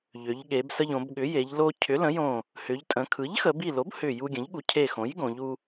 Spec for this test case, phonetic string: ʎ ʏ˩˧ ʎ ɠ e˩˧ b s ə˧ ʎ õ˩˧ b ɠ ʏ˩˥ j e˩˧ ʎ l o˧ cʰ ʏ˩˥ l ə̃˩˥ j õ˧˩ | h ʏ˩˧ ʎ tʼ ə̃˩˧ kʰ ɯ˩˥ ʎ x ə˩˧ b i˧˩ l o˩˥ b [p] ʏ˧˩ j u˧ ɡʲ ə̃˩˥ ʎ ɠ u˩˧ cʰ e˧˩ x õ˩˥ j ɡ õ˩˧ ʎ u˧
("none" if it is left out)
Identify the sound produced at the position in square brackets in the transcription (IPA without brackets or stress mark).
h